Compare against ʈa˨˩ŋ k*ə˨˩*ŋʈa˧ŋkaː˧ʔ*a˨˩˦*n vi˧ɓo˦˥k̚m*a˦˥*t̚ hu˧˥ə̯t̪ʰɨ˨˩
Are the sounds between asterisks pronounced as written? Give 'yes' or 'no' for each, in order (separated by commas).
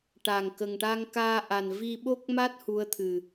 yes, no, yes